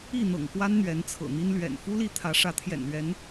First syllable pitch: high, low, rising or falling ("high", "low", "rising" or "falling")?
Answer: falling